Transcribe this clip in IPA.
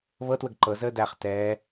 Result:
βɤtwəɡ ǃɤzəː dæχ tɛː

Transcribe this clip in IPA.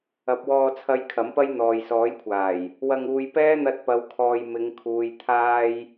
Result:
ɐ˨˥p̚wɔː˧t͡sʰɐ˧j kʰɐ˨˥mpɐ˥j n̪ɔː˨jsɔː˨˥jkʷʰaː˨˩j | wɐ˧ŋuː˧j pɛː˥n̪ɐ˧t̚pɐ˨˧wkʰɔː˨j mɪ˨˧ŋkʰuː˨j t̪ʰaː˧j

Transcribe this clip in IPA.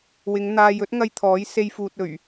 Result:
wɪ˨˧ŋn̪aː˧jɵ˥t̚ ŋɐ˥jt̪ʰɔː˨˥j se˧jfuː˨t̚ ɵ˨˩ɥ

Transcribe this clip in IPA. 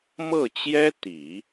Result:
mɤ˥˩t͡ɕjɛ˥ t̪i˨˩˦

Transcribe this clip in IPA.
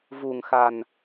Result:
vu˨˩ŋxa˨˩n

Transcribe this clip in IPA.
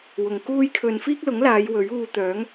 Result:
wʊ˨ŋ kuː˧jkʰɵ˨n fiː˥k̚lʊ˨˥ŋlaː˨˧j wɵ˨˥ɥuː˧t̪œː˨˥ŋ

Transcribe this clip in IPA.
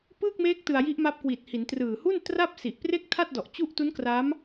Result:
pɯː˥˩k̚meː˦˥k̚ tɯ˧a̯ji˦˥ʔma˦˥p̚ kwiː˨˩t̚hi˩˦n trɯː˨˩hu˥˩n tra˥˩p̚si˨˩ʔpre˥˩k̚ tʰa˥˩t̚dɔ˨˩ʔ t͡ɕu˥˩ʔ tu˦˥nkra˦˥m

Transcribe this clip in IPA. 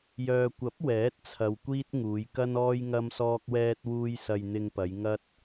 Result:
jœː˨kʷɐ˨˥p̚ wɛː˨˥t̚t͡sʰɐ˨w kʷiː˥t̚ŋuː˨˧jkɐ˥nɔː˥j ŋɐ˥msɔː˥k̚wɛː˥t̚wuː˥j sɐ˧jn̪ɪ˧ŋpɐ˨˧j ŋɐ˥t̚

